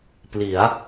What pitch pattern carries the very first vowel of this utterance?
rising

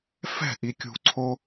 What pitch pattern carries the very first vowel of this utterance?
falling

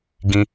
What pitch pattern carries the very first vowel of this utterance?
high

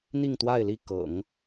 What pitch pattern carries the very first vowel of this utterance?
falling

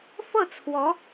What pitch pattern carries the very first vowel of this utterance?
falling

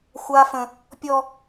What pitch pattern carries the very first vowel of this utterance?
high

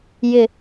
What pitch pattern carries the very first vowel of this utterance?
falling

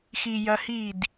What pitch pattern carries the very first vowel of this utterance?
low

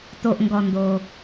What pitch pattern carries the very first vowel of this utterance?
low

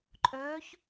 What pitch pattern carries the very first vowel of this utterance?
rising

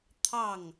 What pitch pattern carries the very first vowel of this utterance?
falling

